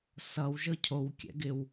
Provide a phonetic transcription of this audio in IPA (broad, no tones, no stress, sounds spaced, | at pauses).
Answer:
s ʌ w ʒ ɤ cʰ o w kʲ ɛ̰ ɡ ɪ w